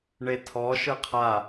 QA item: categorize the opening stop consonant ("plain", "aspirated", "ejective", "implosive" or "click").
aspirated